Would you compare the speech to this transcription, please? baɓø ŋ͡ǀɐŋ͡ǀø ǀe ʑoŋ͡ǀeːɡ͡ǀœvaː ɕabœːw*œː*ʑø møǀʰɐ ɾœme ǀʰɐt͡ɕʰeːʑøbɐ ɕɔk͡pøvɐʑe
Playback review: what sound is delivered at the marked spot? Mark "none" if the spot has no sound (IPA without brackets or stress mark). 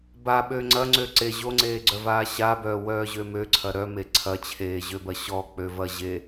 œː